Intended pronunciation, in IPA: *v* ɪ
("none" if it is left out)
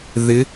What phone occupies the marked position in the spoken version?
ð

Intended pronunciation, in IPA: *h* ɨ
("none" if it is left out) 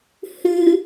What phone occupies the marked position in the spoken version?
h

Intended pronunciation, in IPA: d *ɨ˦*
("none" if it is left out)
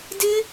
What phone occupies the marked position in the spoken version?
ɪ˦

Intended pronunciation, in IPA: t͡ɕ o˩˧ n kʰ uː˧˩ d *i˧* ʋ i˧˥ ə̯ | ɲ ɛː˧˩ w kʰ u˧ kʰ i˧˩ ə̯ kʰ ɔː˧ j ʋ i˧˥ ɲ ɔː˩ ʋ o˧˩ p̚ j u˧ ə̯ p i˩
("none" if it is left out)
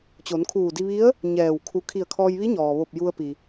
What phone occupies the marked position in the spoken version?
i˧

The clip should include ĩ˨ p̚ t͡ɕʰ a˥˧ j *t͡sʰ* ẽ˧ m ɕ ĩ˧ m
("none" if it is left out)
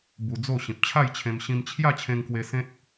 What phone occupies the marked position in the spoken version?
t͡ɕʰ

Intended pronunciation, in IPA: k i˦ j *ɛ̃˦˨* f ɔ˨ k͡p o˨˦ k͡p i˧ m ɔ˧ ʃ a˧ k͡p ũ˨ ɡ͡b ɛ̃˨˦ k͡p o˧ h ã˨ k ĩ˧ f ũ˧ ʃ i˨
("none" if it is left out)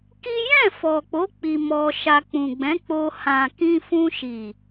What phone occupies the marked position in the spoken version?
ɛ̃˦˨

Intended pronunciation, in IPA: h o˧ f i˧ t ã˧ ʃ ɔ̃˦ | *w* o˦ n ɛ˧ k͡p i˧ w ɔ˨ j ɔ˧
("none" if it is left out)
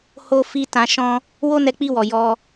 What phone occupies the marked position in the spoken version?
w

